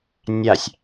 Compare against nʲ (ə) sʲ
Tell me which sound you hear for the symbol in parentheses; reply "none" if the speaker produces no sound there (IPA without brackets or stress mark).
a